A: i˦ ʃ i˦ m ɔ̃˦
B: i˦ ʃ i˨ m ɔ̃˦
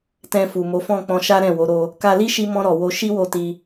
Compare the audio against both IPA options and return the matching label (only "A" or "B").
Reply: A